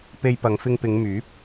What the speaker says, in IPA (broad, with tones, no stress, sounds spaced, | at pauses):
p e˧ j p ɐ˨˧ ŋ f ɪ˧ ŋ p ɪ˨˧ ŋ m yː˨˥ p̚